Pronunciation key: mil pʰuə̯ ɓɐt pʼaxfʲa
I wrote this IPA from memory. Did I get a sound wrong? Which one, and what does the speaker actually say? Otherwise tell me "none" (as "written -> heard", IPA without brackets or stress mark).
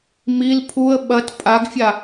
x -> ɡ